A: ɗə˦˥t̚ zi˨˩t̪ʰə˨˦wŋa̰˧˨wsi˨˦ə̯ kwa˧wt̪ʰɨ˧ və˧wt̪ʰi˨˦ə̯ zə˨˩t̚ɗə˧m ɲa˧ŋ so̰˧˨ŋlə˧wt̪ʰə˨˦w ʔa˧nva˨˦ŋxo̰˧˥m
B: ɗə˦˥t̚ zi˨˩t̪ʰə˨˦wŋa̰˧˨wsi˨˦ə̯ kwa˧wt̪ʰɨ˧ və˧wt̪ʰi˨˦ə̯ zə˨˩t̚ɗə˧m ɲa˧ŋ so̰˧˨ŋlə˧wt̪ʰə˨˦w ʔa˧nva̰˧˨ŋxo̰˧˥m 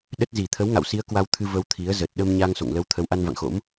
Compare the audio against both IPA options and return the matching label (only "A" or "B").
B